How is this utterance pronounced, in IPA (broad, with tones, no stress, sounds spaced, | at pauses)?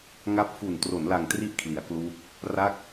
ŋ a˦˥ p̚ f u˨˩ n t r o˩˦ n l a˨˩ ŋ t r i˦˥ ʔ kʰ l i˩˦ a̯ k l uː˦˥ k̚ | r a˦˥ k̚